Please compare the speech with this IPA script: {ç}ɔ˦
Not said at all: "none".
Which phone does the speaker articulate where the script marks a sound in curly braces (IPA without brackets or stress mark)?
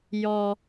j